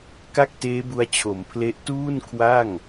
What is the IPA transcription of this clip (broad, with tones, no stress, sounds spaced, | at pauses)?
k a˥˩ k̚ t eː˦˥ b u˧ a̯ t͡ɕʰ o˩˦ m pʰ l e˦˥ ʔ t uː˥˩ n kʰ w a˥˩ ŋ